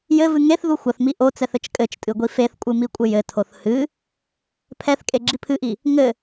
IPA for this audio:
jɘvɨ ŋeθðu xʷɐθmi ʔot͡sɛθ ɘt͡ʃkʼɘt͡ʃtʼɨ ɡʷifeθkʷʼɨ mikʷʼɘjɘtʰoθ hɨ | pʰɛθ kʼeɡ͡ǁipʰɨʔi | ŋɘ

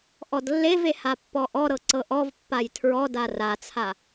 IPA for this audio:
ʔɔdlːeve hapːɔʔɔɾɤ ǀɤʔɔvpːaj tʰɹɔ darat͡sʰa

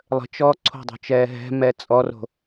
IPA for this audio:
lˠə̤t͡ʃɔː ǀʰo̤dˤo̤t͡ʃɛː ɦɛ̤ mɛt͡sʼɔro̤

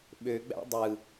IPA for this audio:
ɓøɡ͡bæ̰ dˤɯ

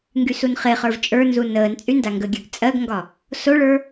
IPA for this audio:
ŋɡysunχeχə˞v t͡ʃʼə˞nzu nəːnt͡sʼy ndaŋɡəɡʲə˞ɡ t͡sʼɜɡŋɡɒ | soɭə˞

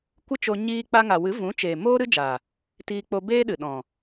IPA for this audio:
kʷɨ˦t͡ʃo˧ ɲiː˧k͡pa˧ ŋa˨wɨ˨˦ vũ˨˦t͡ʃeː˨ moː˦ɾɨ˦d͡ʒaː˨ | tiː˧k͡po˧beː˦ɗɨ˨ ɗɔ̃˨

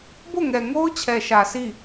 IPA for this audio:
bo˦˨ŋɛ˨ŋo˦ʊ̯ t͡ɕʰɛ˨ʃä˨ sʰi˦˨

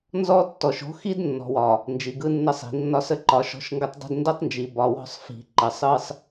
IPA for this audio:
nzɔ˦tːɔ˨ʃo̤˦ xi˦d nːɔ̤˨wɒ˨ | nd͡ʒi˨ɡɯ˦nːə˦sˤi̤˨ nːɒ˦sə˦ǃɒ˨˦ ʃɔ̤˦ʃŋɡə˦tˤdˤi̤˦d ndə˦tˤnd͡ʒi˨ bɒ˨wɔ̤˦sˤ fi̤˨ǃə˨sˤɯ˦sˤ

